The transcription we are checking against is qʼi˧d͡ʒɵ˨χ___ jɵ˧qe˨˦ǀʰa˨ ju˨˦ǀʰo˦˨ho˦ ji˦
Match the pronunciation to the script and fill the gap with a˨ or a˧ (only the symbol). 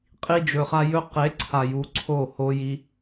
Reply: a˧